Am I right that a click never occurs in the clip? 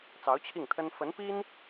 yes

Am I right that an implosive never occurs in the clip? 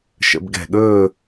no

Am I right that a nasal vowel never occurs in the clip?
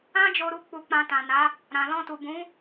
no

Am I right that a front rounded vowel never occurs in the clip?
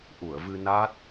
yes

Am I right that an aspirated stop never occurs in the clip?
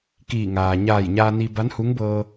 yes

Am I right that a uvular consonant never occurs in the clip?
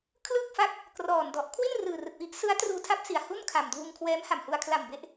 yes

